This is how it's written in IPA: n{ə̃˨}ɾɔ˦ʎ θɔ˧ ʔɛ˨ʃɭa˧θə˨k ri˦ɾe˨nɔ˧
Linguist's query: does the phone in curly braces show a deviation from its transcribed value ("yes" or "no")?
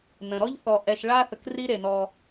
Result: no